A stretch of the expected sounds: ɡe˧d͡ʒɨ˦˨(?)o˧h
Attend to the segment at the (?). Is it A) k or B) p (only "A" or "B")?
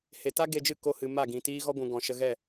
A